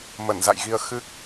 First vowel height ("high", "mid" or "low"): mid